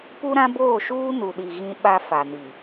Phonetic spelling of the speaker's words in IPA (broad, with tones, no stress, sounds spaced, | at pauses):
p u˦ ɾ ã˦ b oː˦˨ ʃ uː˦ n u˨ ɗ i˨ ɣ ĩ˦ ɓ a˦ f a˨ n i˨